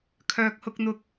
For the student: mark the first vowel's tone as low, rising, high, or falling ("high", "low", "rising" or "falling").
low